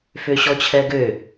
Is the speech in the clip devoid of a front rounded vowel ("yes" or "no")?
no